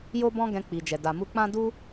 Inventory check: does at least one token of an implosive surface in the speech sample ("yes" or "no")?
no